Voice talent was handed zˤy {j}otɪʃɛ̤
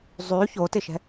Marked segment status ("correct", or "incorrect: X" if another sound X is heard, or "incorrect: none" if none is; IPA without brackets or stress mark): incorrect: ç